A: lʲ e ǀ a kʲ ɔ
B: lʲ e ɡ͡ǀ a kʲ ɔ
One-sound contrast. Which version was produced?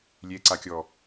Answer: A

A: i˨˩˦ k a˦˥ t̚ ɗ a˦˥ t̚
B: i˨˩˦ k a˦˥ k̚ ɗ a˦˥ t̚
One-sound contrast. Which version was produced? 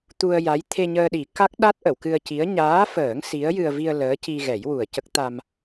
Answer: B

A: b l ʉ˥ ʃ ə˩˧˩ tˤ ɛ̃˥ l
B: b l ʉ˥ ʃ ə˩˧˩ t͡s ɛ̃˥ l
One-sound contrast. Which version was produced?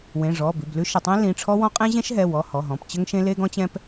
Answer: A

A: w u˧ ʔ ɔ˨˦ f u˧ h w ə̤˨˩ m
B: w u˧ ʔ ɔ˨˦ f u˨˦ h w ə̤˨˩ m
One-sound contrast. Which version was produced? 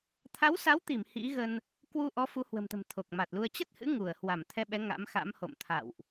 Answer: B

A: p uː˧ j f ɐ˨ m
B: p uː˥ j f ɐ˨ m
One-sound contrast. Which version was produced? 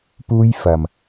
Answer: B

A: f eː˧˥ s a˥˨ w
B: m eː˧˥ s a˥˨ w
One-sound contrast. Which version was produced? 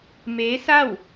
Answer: B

